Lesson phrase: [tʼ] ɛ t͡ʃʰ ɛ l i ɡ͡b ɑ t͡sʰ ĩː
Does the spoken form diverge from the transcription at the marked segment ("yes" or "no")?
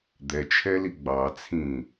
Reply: yes